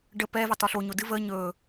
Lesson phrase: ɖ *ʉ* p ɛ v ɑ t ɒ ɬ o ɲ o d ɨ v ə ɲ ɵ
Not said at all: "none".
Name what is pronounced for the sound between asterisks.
ə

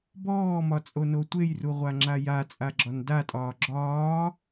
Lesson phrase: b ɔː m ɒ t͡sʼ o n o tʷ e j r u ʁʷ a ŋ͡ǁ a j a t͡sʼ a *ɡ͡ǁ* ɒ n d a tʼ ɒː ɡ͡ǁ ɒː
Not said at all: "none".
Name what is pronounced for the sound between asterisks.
ɡ͡ǁ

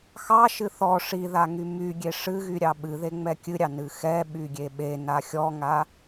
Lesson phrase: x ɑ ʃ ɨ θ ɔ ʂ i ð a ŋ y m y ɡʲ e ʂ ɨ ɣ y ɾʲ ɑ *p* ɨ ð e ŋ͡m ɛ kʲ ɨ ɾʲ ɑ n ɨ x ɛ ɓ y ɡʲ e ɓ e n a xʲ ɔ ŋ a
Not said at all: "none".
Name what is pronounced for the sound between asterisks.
ɓ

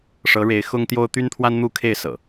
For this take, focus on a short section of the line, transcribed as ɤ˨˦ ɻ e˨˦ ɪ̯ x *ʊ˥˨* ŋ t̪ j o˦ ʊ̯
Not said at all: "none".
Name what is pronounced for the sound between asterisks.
ʊ˦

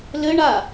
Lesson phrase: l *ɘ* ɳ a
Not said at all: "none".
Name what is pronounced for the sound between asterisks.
ɘ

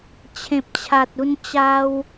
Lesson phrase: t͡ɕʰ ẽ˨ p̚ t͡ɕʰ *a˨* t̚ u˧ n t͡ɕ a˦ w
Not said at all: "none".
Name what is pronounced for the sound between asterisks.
a˨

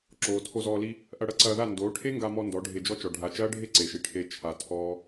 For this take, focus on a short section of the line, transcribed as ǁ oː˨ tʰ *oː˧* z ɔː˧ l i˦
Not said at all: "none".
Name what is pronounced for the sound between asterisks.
o˧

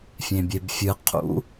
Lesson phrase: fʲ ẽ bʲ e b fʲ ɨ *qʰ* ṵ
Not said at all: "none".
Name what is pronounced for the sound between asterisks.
qʰ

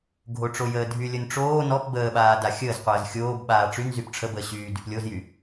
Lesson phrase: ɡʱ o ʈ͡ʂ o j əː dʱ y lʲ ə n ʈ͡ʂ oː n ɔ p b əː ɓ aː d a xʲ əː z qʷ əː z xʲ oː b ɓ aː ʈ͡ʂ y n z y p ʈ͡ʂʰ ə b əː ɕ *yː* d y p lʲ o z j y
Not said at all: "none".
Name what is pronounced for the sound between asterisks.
yː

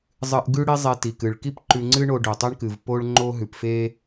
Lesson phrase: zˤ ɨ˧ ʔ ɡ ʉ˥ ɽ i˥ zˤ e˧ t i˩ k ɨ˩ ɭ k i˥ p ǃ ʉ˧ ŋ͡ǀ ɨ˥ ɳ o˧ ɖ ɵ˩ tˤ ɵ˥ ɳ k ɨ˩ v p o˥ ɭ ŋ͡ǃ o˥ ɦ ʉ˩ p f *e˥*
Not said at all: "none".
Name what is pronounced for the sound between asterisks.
e˥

